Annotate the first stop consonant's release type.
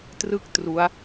plain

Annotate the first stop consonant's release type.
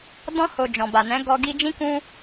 plain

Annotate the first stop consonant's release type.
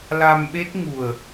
implosive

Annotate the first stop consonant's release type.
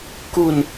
plain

